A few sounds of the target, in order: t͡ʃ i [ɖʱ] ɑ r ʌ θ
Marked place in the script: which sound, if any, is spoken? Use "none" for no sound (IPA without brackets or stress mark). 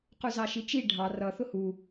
ɖʱ